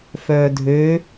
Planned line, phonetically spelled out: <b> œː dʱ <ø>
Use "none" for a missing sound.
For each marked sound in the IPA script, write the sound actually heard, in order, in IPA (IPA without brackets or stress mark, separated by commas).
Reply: f, ø